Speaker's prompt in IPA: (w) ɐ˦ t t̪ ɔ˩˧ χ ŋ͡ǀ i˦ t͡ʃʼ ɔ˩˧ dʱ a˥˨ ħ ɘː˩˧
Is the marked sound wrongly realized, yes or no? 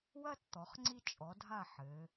no